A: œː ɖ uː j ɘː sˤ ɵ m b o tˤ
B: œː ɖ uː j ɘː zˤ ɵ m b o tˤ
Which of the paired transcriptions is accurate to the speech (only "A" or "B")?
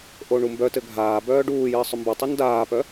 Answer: A